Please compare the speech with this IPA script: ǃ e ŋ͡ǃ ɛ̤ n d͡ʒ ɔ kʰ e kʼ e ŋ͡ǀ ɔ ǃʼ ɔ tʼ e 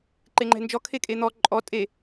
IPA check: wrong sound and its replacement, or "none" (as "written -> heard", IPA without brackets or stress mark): ŋ͡ǀ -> n̪